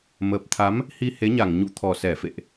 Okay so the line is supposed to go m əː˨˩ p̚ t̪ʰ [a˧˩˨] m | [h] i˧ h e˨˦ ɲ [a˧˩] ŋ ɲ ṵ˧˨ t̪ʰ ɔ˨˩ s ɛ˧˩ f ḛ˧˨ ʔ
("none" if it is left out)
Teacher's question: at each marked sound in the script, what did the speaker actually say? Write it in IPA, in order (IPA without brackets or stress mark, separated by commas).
a˨˦, h, a˧˩